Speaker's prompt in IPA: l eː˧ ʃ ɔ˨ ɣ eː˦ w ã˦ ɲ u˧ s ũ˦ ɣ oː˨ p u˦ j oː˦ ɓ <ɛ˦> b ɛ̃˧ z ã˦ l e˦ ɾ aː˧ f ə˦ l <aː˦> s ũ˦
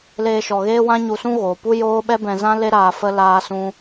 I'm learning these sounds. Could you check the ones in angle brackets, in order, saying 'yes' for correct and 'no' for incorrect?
yes, yes

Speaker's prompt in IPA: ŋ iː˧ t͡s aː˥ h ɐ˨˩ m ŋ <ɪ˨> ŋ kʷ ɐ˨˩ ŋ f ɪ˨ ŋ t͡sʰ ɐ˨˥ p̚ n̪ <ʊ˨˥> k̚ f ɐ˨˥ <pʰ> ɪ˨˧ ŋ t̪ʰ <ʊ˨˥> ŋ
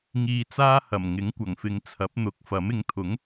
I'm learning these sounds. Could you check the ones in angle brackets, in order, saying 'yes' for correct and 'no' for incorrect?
no, yes, no, yes

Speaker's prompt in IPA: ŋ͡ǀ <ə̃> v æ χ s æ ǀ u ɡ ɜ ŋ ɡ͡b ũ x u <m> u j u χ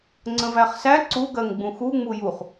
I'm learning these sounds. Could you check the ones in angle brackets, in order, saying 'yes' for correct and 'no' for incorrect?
yes, no

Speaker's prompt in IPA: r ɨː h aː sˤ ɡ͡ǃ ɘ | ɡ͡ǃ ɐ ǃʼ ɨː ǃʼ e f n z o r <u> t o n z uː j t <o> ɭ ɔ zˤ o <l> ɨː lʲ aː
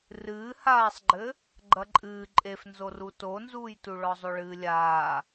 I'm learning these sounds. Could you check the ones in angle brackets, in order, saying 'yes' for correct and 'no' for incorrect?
yes, no, no

